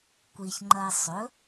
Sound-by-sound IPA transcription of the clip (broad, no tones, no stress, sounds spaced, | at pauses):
kʷ i ç ŋ͡ǃ ɐ ɪ̯ sˤ ɵ